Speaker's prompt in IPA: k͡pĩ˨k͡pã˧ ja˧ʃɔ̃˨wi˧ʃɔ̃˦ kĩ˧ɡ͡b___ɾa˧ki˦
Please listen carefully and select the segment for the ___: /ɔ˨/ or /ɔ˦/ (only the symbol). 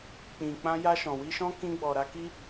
ɔ˨